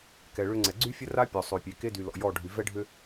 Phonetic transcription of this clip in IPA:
k ɛ˨ ɭ ʏ˦ ŋ͡ǀ ɛ˨ ɡ͡ǀ y˦ fʲ ə˦ r a˦ pʲ ɔ˨ sˤ ø˨ pʲ e˨ k e˦ d y˨ l ɔ̰˨ j ɔ˦˨ ɖʱ y˨ v ɛ˦ ɖʱ ʏ˦

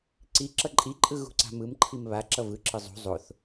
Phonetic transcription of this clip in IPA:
ǀ i ǁ ʌ ǃʼ i ǃʼ ɯ ɣ ṳ ǀ a̤ m ɯ m ǃʰ i m β a ǁ ʌ v ɯ ǁ ɯ zˤ ṳ zˤ o θ

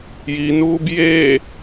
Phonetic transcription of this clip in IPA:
j i n uː b j e

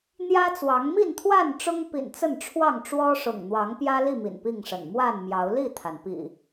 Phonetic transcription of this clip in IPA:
n̪ j ä˦ t͡s w ɑ˨˦ ŋ m i˥˨ n t̪ʰ w a˥˨ n ʈ͡ʂ ʊ˦ ŋ p ḭ˨˩ n t͡s ə˥˨ n ʈ͡ʂʰ w ɑ˥˨ ŋ ʈ͡ʂ w ɔ˦ ʂ ʊ̰˨˩ ŋ n̪ w ɑ˨˦ ŋ p j ä˦ l i˥˨ m ḭ˨˩ n p i˥˨ ŋ ʂ ə̰˨˩ n m w a˥˨ n m j ɑ˨˦ ʊ̯ l i˥˨ t̪ʰ a˩ n p ḭ˨˩

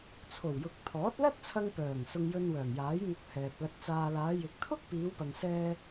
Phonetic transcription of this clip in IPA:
t͡sʰ o˨˩ w j ʊ˨ k̚ t̪ʰ ɔː˨˥ t̚ l ɐ˥ t̚ t͡sʰ ɐ˧ ŋ p œː˨˩ ŋ s ʊ˧ ŋ j ɵ˧ n w œː˨˩ ŋ j aː˨˥ j ŋ ʊ˧ k̚ h ɛː˨ p̚ l ɐ˧ t̚ t͡s aː˧ l aː˨˧ j ɪ˨ k̚ t̪ʰ ʊ˥ k̚ p iː˨˧ w p ɐ˨ ŋ s ɛː˧

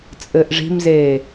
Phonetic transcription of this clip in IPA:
t͡sʼ ɘː ʔ ʐ i̤ m z eː

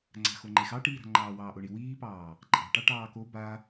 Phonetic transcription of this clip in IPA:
ŋ͡ǀ a̤ x o ŋ͡ǃ e x ɑ ʈ iː ɾ a̤ ŋ͡ǃ ɑː w ɑː ʔ o ɳ i w iː p ɑː | ǃʼ ɑ̤ ʈ ɑ ʈ ɑː k o b a

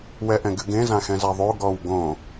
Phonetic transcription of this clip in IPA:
w ɛ ʔ ɛ̃ ɡ ɨ ɡ ẽ z ã x ɛ̃ z a ðˤ o ɡ ɔ w ɡ õ

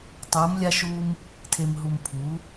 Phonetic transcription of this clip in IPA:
tˤ uː˨˦ m lʲ a˦ ʃ uː˦ m | tʰ e˨ m ɦ u˨ m pʰ uː˨˦

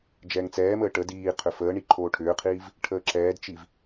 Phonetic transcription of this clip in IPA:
d͡ʒ ɛː ŋ t͡s ɛː m əː ʈ ə d iː qʰ ʏ f əː ɳ i ǃʰ oː ʈʰ ʏː qʰ iː v | ʈʰ əː ǁ ɛː d t͡ʃ i v

